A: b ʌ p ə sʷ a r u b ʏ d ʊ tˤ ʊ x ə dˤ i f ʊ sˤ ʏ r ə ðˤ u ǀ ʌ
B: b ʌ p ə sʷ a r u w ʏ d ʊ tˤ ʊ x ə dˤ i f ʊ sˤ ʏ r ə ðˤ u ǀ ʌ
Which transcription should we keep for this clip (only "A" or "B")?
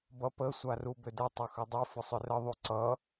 A